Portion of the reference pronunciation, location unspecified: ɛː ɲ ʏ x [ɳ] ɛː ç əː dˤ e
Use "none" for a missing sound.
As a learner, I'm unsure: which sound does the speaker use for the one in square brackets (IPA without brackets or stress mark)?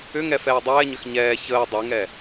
ɲ